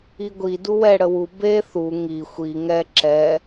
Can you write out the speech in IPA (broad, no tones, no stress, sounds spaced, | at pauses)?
i ɡʷ i d u w ɛ ɽ ə w u b e θ u ŋ i xʷ i ŋ ɛ ǁ ɛ